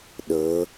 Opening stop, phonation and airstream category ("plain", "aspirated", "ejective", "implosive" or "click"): implosive